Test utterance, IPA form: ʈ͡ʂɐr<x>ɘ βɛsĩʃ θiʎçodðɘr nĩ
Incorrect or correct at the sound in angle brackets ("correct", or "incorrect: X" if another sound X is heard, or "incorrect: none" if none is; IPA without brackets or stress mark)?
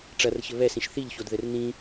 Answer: incorrect: ç